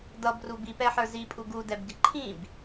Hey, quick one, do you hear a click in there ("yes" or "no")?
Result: yes